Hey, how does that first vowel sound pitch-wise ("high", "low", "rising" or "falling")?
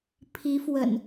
rising